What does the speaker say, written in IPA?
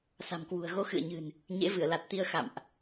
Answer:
sa̤˨˩mkwṳ˨˩ə̯ɣo˧ xɨ̰˧˨ə̯ɲɨ̤˨˩n | ɲḛ˧˥vɨ˧˩ə̯la˨˩t̚t̪i˧ə̯ xa̰˧˨mʔ

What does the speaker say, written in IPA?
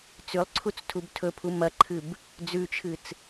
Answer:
t͡sʉlˠǀʰut͡s tʰubtʰɵpʰu mɐǃʰɨb | d͡zʉt͡ʃʰɨt͡s

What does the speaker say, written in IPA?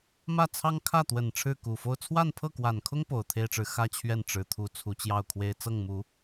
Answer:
mä˥˩t͡sʰɑ˥ŋ kʰä˥˩t̪wə˨˩n ʈ͡ʂʰɻ̩˥˩ku˨˩fo˥˧ʊ̯ t͡sʰwa˥˧npʰɤ˥˩kwa˨˩nkʰʊ˥ŋ po˨˩ʊ̯t̪ʰe˥ɪ̯ʈ͡ʂɻ̩˧˥ xä˥t͡ɕʰɥɛ˥˩n ʈ͡ʂɻ̩˨˩t̪ʰu˧˥ t͡sʰu˧˥t͡ɕjɑ˥˩ʊ̯kʰwe˥ɪ̯ t͡sɤ˥˩ŋmu˨˩˦

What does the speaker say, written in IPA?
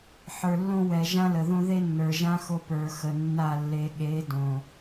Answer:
ħə˞˨lːõ˦wɛ˨ ʒã˦lə˨ðõ˦ ðe˦nːə˞˨ ʒã˦xo˨ pə˞˨xə˨nːa˦˨ lːe˨ɠe˨˦ dõ˨

